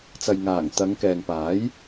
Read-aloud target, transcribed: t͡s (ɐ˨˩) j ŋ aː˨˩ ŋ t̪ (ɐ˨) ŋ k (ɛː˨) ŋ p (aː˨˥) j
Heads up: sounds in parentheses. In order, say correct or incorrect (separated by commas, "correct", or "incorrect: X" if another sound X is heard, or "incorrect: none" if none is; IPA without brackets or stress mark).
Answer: incorrect: ɐ˨, incorrect: ɐ˨˧, correct, correct